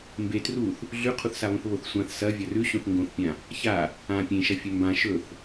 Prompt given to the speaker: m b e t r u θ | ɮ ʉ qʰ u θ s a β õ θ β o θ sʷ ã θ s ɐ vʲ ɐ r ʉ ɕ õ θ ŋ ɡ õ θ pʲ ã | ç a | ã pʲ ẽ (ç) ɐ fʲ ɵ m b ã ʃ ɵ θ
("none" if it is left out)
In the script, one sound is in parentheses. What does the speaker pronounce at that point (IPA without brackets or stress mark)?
ʃ